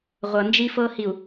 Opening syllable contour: low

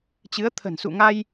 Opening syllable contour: rising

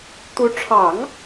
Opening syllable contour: rising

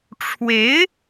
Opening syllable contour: rising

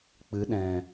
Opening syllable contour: rising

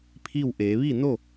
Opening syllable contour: falling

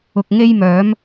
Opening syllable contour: low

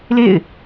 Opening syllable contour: falling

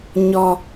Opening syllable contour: low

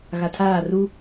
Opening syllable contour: low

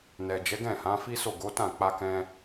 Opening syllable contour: low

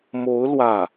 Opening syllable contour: rising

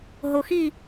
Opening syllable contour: low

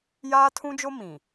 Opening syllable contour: high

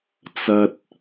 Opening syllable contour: low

